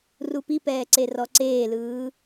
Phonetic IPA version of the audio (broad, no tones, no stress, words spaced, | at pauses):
rupipɛː ǀerɔǀeːlɯː